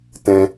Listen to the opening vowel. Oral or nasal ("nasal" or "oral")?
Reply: nasal